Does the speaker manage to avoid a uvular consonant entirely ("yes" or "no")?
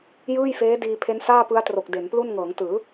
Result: yes